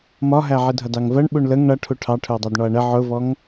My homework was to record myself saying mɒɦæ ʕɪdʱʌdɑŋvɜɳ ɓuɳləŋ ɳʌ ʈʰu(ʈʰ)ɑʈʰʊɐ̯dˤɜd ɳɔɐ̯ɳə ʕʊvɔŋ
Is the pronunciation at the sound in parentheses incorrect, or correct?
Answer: correct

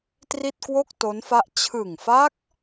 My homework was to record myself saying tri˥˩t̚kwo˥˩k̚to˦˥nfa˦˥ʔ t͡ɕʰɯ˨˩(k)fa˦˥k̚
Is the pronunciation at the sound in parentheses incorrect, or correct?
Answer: incorrect: ŋ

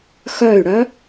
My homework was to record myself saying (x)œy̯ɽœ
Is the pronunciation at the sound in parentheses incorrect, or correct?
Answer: correct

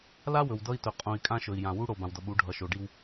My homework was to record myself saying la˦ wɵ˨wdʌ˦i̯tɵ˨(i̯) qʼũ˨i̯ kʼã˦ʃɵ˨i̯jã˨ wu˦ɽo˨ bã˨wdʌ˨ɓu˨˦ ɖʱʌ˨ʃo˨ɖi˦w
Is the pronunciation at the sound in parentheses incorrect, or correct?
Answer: incorrect: none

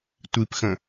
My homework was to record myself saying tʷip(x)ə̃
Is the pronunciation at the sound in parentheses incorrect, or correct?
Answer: correct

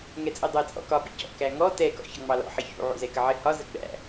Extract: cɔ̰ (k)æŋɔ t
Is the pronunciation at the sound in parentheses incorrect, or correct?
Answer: correct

